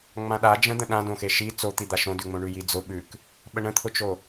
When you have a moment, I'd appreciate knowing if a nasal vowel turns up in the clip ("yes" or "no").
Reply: yes